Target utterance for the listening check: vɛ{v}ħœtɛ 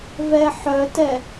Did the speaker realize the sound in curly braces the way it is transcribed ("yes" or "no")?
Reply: no